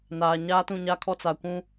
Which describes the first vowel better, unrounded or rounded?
unrounded